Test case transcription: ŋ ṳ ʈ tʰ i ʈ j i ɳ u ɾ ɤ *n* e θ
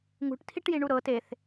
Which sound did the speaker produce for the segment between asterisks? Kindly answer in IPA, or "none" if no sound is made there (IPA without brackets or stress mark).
t